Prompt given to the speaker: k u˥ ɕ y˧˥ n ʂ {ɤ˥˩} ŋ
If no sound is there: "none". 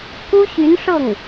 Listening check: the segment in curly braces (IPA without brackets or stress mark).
ɤ˥˩